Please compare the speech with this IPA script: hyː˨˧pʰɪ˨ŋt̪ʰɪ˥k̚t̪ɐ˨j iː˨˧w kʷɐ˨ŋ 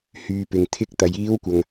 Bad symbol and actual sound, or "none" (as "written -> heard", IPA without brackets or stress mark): pʰ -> p